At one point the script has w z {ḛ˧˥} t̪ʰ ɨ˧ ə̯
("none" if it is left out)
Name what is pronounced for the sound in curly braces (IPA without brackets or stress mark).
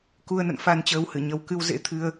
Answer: ḛ˧˥